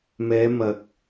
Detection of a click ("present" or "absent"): absent